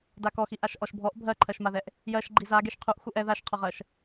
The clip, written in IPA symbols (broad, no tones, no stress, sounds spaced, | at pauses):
d a k ɔ x i ʔ a ʃ ʔ ɔ ʃ bʱ ɔ ʔ bʱ ɜ ǃʰ ɜ ʃ m a ð ɛ ʔ | j ɜ ʃ ɡ͡ǃ i z a ɡ e ʃ qʰ u ʔ x u ʔ ɛ ð a ʃ qʰ ɔ ʁ ɜ ʃ